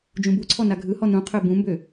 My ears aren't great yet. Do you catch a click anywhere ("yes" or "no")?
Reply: yes